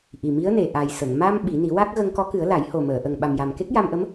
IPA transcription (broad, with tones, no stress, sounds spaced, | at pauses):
ʔ i˨˩ m i˧˥ ə̯ n e˨˩ ʔ a˨˩ j s ə˨˩˨ ŋ m a˧ m ɓ i˨˩˦ n i˨˩˦ w a˦˥ k̚ ɣ ə˧ ŋ k ɔ˧˥ k ɨ˨˩˦ ə̯ l a˨˩˦ j h o˨˩ m əː˨˩˨ ʔ ə˨˩ ŋ ɓ a˨˩ m j a˨˩ m k e˦˥ k̚ j a˧ m ʔ ə˧˥ m